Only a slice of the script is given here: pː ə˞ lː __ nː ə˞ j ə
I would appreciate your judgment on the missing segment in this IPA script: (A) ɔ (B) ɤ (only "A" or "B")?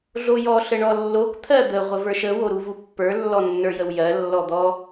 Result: A